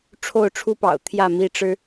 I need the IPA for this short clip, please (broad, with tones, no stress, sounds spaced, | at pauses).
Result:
ʈ͡ʂʰ o˥˨ ʊ̯ ʈ͡ʂʰ u˦ p ɑ̰˨˩ ʊ̯ t̪ʰ j ä˥˨ m i˥˨ ʈ͡ʂ ɻ̩˦